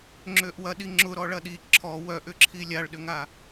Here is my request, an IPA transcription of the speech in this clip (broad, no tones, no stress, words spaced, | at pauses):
ŋ͡ǁøʔwɐɗi ŋ͡ǁʊɾɔ ɭɐɗi ǁʰɔ wœʔʏǁʰi lʲaɭɗʏŋa